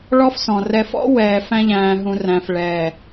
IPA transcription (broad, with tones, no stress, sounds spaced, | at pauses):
ɭ ɔ˦ f s ɔ̃˨ r ɛ˨ f ɔ̰˦ w ɛː˨ f æ̃˦ ʎ æ̃ː˨ ɦ ũ˨ r æ̃˨ f ɭ ɛː˨